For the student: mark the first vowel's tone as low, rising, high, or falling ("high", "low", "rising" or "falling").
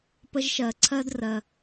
high